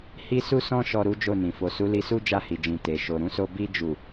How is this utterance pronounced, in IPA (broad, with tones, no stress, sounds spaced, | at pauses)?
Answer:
h i˦ s u˦ s ɔ̃˦ ʃ ɔ˧ ɾ u˦ d͡ʒ o˦˨ n ĩ˨ f o˨ s u˨˦ l i˧ s u˦ d͡ʒ a˦˨ h i˨ d͡ʒ ĩ˨ t e˨ ʃ o˨ ɾ ũ˧ s o˧ b i˧ d͡ʒ u˨